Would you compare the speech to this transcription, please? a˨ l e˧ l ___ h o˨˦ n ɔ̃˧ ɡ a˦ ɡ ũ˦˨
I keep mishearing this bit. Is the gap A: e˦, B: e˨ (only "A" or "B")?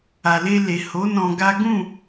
B